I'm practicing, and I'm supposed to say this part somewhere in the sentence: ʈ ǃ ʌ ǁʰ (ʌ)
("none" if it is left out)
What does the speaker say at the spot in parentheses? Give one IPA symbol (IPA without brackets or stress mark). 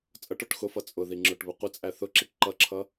ʌ